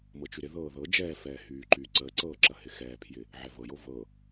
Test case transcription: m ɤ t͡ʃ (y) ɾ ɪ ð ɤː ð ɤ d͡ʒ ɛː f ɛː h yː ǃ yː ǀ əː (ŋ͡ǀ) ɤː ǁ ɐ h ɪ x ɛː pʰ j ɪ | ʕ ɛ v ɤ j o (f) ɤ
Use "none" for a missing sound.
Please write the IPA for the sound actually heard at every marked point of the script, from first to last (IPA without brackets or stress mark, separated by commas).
y, ǀ, v